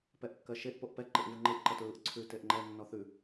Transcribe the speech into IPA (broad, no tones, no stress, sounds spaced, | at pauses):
p ɛ ʔ kː ɜ ʃ e ʔ p o ʔ p ɛ ǃ ɪ ʔ v ɯ ŋ͡ǃ ɯ ʔ ǃ ə t ɹ ɯ ʔ ǀʰ ʉ t e ʔ ŋ͡ǃ ɛ nː ɔ θ ʉ